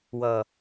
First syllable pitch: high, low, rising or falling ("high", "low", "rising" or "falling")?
low